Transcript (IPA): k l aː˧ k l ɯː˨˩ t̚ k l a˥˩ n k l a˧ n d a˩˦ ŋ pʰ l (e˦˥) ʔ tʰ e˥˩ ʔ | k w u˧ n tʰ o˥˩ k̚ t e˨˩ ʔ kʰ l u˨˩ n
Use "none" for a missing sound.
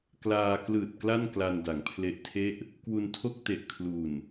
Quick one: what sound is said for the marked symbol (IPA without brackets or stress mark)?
e˦˥